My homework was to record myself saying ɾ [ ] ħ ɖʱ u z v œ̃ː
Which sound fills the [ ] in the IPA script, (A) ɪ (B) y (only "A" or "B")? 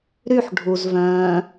B